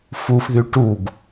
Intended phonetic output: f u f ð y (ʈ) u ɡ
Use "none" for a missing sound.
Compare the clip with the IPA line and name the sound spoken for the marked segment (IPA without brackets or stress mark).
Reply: ʈ